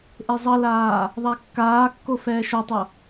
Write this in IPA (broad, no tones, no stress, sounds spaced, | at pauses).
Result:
ʔ e zˤ ʌ l aː | ðˤ a kː aː kː o f ɛː ʃ o tˤ o